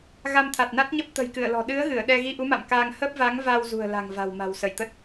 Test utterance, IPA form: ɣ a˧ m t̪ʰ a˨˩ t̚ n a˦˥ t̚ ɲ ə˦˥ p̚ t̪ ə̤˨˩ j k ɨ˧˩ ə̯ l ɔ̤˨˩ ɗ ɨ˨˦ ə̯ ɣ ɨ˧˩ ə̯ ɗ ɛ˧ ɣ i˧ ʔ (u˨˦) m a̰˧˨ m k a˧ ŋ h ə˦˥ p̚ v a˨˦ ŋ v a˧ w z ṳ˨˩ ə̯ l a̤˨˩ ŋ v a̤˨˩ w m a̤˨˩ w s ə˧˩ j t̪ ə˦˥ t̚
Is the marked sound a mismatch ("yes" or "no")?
no